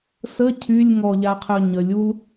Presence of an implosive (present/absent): absent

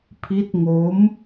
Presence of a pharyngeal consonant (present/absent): absent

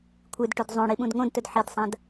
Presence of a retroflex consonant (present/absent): present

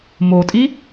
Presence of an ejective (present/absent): present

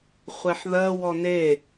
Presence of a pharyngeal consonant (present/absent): present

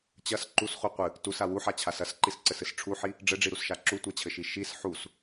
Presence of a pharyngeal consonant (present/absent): present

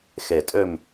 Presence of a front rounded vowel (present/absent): present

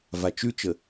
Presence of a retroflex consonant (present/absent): absent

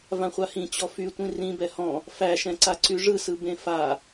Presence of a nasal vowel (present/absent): present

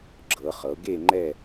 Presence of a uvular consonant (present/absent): present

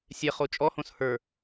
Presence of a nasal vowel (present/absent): present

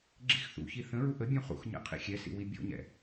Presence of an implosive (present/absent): absent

